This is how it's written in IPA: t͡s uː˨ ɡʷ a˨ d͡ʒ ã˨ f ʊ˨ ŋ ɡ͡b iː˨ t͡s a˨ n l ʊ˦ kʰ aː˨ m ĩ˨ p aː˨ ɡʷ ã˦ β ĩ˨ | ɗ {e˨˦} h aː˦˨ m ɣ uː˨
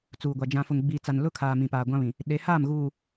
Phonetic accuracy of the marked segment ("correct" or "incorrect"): correct